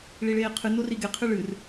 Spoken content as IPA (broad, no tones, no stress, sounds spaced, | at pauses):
ɭ i ɭ eː qʰ ɨ n o r i ɡ e qʰ ɨ ɭ ɨ r